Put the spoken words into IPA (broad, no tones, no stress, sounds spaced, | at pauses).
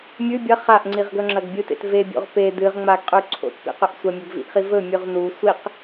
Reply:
mʲ ʉ bʲ ɐ χ a ʔ ŋ͡ǀ i ʁ ɡ ɵ ŋ͡ǁ ɐ ɡ bʲ ɨ t ḛ t v e bʲ o̰ ʁ p e d ɨ ʁ ŋ͡m a ɡ qʼ ʉ ǀʰ o̰ t p ḭ q ɵ ʔ sʷ ɐ mʲ ɵ ɡ v ḭ ʔ χ i v ɵ mʲ ʉ ʁ n u sʷ i q